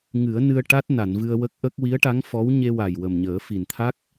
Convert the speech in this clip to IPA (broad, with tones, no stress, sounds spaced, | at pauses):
ŋ ɨ˨˩˦ ə̯ n ɨ˧ ə̯ ʈ a˦˥ t̚ n a˨˩˨ n v ɨ˧ ə̯ w ə˦˥ k̚ ʔ ə˦˥ k̚ w i˧˥ ə̯ ʈ a˧˥ ŋ f ɔ˧˥ w ɲ e˧ w a˨˩ j w ə˨˩ m ɲ əː˨˩˦ f i˨˩ n t̪ʰ a˦˥ k̚